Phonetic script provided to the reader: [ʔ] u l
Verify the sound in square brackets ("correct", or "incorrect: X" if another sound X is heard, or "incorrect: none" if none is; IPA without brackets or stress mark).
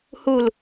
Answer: incorrect: h